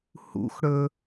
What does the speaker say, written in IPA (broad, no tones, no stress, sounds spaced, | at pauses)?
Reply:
h ṵ x ɽ ɵ